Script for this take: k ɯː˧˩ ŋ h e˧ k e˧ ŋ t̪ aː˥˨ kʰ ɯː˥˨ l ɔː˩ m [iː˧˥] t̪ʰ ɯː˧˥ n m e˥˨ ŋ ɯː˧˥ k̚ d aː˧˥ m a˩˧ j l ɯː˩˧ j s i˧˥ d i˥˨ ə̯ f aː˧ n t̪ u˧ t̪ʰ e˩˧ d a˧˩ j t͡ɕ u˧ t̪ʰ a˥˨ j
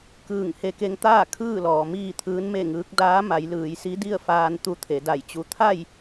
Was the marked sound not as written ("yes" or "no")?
yes